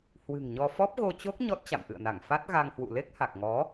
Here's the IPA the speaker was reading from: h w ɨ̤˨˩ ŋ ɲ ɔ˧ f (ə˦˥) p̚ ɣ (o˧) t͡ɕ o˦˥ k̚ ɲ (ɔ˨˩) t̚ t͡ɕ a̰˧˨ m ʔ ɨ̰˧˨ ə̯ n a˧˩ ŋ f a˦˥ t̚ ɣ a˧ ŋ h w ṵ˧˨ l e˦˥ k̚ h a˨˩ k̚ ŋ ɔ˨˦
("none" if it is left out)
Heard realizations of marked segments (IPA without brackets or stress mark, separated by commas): ɔ˦˥, o˧, ɔ˦˥